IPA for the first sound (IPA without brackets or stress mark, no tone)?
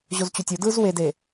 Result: ʑ